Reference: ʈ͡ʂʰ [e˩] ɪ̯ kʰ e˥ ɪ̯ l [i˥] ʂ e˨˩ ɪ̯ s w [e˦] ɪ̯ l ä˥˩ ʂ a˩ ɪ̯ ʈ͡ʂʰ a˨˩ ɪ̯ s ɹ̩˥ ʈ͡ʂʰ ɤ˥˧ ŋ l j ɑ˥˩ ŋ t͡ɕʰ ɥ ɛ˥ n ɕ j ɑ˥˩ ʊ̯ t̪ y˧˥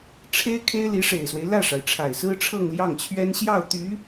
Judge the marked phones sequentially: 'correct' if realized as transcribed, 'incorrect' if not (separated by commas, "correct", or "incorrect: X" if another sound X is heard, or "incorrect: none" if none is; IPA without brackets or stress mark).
incorrect: e˥, incorrect: i˧˥, correct